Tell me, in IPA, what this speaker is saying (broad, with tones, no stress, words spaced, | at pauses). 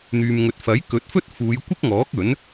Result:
n̪yː˨mŋɵ˨˥t̚ fɐ˨˥jkɵ˨˥t̚fɵ˥t̚ fuː˨˧jkʷɪ˥k̚ŋɔː˨˥k̚ ɵ˨˥n